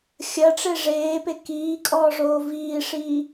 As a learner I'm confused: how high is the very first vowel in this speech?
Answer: low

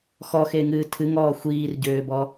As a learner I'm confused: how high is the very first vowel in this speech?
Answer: mid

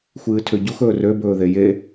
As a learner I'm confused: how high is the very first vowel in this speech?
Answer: high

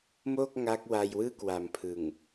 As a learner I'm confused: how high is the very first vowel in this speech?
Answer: mid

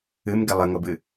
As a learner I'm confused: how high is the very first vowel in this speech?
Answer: high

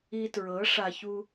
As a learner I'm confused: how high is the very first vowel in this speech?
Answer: high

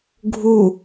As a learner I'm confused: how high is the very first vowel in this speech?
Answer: high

